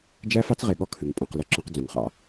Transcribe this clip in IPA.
d͡ʒ æ˦ f ɑ˦ t͡s ʁ e˨ ɠ ɔ˦ kʰ ɨ˨ ŋ pʼ ũ˨ q l ə˦˨ ǁ ɔ̃˦ q d͡z ũ˨ ŋ χ ɑ̰˦

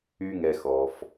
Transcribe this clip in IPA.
y˨ ŋ ɛ˩ x ɔ˩ f

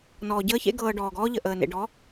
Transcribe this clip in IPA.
n ɔː˨ ɟ əː˦ ç ḛ˦ ɡ ɤː˨ ɖ ɔː˨ ɡ ɔː˦ ʎ ə˨ ʔ əː˨ n ḛ˨ ɖ ɔ˨˦

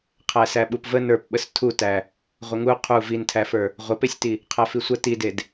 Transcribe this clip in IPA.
qʰ æ s æ ɓ u p v ə n ə˞ p ɓ ə s tʰ u t æ | ʁʷ ə ŋ u qʰ u v i n tʰ æ f ə˞ | ʁʷ ə p e sʲ t i | qʰ æ f i sʷ ə t i d e d

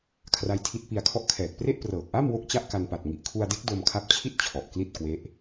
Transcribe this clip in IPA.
kʰ r a˦˥ j tʰ i˦˥ t̚ p i˧ a̯ kʰ ɔ˥˩ ʔ kʰ ɛː˨˩ k̚ p r e˥˩ ʔ p r ɤː˨˩ k̚ ʔ a˥˩ m w o˥˩ k̚ t͡ɕ a˥˩ ʔ k a˧ n p a˨˩ t̚ ŋ i˨˩ ʔ kʰ u˧ a̯ d e˦˥ k̚ d o˧ m kʰ a˦˥ p̚ t͡ɕʰ i˥˩ t̚ t͡ɕʰ ɔ˨˩ ʔ k l i˥˩ t̚ k w e˦˥ ʔ

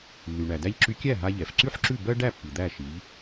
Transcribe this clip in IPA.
lː y˩ ɳ æ˩ d æ˧ ʎ ǁ y˧ kʲ æ˥˩ ɦ a˧ ʎ ɛ˩ f ǀ y˥ ħ ǁ ʉ˥˩ b ɜ˥ ɖ æ˥˩ pː i˩ d̪ æ˥˩ ʃ i˩˥ ʎ

